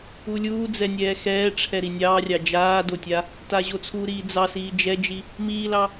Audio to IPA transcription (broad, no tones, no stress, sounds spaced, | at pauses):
u lʲ uː d͡z ɛ nʲ ɛː x ɛː ʈ͡ʂʰ ɛ ɾ i nʲ ɑː rʲ ɑ d͡ʒ aː d o tʲ a | t a ʑ o t͡sʰ u ɾ iː d͡z ɑ s iː d͡ʒ ɛ d͡ʒ i | m iː l ɑ